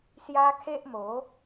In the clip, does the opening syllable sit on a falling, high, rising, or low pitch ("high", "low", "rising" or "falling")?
high